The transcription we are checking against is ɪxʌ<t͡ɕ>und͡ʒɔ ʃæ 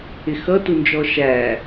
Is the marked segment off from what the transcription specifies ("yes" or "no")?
yes